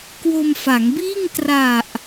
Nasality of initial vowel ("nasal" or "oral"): oral